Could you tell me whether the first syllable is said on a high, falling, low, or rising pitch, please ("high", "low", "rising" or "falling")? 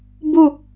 falling